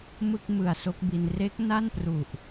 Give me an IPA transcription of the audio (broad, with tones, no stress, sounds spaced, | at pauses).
m ɯ˥˩ k̚ m ɯ˨˩ a̯ s o˦˥ k̚ b i˧ n r e˦˥ k̚ n a˥˩ n p r u˨˩ ʔ